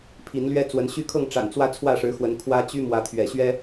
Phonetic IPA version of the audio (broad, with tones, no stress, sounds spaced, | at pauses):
pʰ i˨˦ n l ɥ ɛ˦ t͡s w ə˨˦ n ɕ y˦ kʰ ɤ˥˨ ŋ ʈ͡ʂ a̰˨˩ n t͡s w ä˦ t͡sʰ w ä˥˨ ʂ ɻ̩˨˦ x w ə˨˦ n kʰ w ä˦ t͡ɕ y˦ m w ä˨˦ t̪ʰ ɥ ɛ̰˨˩ ɕ ɥ ɛ˦